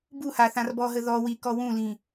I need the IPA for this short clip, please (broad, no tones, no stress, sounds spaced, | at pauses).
b u h a θ ã r b ɔ ɦ ə ð ɔ w i k ɔ w ũ l ĩ